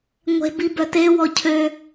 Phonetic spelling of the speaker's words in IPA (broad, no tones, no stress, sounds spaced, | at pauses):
ŋʷ e̤ b i b œ t e w ɔ cʰ ø